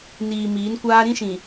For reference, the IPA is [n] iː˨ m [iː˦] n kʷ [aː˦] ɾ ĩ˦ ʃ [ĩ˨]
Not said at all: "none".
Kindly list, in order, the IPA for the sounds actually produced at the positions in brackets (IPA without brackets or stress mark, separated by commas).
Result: n, iː˨˦, aː˦, ĩ˨